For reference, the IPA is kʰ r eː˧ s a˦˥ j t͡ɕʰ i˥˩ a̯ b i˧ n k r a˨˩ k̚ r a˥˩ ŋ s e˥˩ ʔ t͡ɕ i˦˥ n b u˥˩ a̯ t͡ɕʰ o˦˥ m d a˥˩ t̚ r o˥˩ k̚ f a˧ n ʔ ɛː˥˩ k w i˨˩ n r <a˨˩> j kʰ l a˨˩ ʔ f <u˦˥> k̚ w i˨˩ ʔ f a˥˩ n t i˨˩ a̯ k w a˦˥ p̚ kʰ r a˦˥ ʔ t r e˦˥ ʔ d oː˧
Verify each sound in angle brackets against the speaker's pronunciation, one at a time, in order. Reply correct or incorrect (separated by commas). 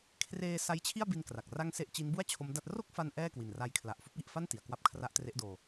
incorrect, correct